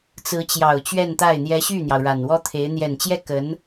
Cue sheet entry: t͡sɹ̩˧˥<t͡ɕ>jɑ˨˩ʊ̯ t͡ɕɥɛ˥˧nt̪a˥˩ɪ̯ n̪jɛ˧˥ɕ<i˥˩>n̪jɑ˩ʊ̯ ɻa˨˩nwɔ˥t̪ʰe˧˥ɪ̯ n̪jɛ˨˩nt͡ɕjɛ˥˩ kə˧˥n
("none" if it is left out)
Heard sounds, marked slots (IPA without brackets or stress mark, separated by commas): t͡ɕ, y˥˩